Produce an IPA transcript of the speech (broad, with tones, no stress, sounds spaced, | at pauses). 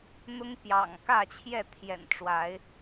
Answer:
n̪ ʊ˦ ŋ p j ɑ̰˨˩ ŋ k ä˥˨ t͡ɕʰ j ɛ˥˨ t̪ʰ j ɛ̰˨˩ n ʈ͡ʂ w a˨˦ ɪ̯